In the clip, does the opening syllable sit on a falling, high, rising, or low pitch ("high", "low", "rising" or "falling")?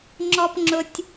high